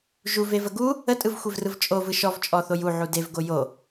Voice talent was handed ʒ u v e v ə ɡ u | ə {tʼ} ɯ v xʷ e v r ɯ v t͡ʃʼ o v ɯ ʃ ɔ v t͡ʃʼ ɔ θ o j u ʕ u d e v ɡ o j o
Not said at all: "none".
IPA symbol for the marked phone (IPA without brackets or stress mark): tʼ